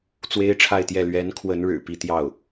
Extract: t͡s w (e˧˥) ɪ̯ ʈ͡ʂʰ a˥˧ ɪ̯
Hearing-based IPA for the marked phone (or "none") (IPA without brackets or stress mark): e˥